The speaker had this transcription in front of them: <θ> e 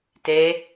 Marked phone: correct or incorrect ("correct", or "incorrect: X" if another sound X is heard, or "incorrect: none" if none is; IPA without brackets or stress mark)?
incorrect: t